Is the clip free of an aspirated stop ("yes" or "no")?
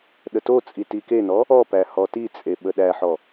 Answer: yes